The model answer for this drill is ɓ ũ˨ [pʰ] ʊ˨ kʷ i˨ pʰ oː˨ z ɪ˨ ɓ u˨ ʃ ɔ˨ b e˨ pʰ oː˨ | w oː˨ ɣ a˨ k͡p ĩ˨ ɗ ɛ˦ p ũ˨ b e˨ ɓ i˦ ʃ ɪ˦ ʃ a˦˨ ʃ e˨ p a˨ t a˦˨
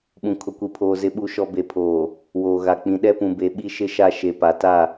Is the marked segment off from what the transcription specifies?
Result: yes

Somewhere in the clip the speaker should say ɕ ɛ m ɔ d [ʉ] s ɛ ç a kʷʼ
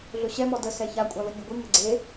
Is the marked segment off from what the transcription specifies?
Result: yes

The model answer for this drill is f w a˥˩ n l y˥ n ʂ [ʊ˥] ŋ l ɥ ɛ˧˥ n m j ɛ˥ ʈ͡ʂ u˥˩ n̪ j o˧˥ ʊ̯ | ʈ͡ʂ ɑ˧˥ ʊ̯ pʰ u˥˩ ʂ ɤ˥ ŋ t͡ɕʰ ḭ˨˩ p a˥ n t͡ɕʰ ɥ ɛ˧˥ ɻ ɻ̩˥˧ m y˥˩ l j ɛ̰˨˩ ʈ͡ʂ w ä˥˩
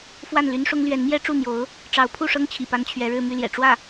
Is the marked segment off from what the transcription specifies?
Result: no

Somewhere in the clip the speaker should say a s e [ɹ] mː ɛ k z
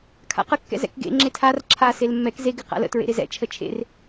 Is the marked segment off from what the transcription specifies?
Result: yes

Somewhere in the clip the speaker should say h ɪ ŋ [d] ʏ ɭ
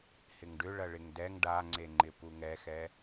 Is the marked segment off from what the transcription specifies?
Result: yes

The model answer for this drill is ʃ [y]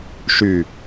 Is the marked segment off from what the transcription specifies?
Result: no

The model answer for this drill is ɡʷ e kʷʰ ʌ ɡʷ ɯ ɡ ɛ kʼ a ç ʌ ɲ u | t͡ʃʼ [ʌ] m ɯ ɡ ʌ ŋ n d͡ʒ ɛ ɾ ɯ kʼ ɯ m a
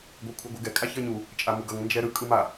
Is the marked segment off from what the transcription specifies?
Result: yes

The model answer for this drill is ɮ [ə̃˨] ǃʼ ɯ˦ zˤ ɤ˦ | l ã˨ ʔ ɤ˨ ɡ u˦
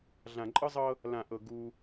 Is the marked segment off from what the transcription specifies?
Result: yes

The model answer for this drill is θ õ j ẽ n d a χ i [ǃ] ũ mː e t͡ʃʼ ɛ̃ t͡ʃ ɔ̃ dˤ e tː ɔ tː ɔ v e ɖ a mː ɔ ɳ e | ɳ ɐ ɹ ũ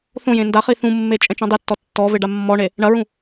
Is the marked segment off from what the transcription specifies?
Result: yes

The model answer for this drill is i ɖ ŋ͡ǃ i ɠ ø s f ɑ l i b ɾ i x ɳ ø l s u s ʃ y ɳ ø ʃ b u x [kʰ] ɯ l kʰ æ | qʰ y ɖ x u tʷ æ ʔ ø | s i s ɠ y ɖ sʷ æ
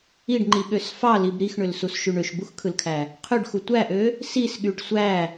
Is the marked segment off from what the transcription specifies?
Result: no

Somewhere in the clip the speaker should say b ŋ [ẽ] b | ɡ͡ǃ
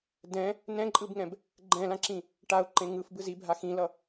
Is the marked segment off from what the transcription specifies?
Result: yes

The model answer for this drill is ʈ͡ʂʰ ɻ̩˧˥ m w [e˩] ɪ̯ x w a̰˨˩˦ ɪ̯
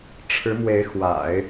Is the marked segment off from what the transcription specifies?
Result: yes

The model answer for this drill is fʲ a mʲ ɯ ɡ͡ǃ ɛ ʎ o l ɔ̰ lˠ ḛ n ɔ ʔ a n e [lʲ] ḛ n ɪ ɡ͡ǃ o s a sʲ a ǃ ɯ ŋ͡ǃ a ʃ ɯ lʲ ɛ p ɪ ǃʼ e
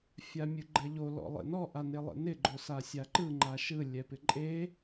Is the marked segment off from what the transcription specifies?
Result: yes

